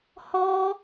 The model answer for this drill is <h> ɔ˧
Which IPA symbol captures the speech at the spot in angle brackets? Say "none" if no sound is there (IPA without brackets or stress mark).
h